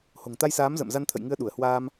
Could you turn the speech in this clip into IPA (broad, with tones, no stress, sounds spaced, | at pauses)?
h o̤˨˩ ŋ t̪ a˧ j s aː˨˦ m z ə̰ː˧˨ m z a˧ n t̪ʰ ə̰˧˨ j ŋ ɨ˧ ə̯ ɗ u˧˩ ə̯ h w aː˧ m